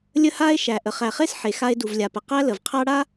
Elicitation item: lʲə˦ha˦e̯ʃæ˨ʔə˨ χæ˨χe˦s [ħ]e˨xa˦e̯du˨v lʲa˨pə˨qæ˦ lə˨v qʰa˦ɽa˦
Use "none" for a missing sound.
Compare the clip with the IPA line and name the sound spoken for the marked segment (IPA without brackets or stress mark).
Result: ħ